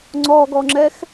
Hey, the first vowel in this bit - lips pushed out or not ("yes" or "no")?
yes